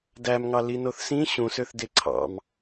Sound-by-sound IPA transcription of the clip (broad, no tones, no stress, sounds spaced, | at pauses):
d æ m ŋ ɑ l i n o θ s ĩ ɕ ũ s ø θ d e ǀʰ ɑ̰ m